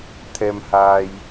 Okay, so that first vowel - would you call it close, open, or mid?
mid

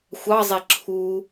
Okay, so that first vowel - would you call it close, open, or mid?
open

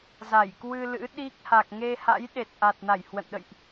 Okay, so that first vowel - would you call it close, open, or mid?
open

